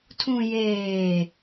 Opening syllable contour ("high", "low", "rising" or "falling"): low